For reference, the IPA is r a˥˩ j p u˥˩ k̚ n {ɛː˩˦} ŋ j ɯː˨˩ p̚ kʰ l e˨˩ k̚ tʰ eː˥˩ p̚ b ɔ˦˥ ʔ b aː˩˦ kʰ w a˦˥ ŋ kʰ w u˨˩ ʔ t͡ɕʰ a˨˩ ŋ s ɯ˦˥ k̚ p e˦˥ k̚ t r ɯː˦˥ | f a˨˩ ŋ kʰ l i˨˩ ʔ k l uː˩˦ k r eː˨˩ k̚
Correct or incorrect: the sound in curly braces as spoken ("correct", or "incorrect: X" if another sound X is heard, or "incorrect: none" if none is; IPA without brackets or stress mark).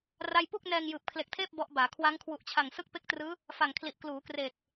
incorrect: ɛː˧